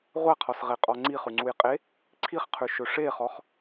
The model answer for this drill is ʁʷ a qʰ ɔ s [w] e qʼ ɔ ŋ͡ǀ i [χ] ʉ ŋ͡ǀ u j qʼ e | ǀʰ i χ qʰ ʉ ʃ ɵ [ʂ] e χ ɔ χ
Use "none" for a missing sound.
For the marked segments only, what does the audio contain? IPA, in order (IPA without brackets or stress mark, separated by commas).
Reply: ʁ, χ, ʂ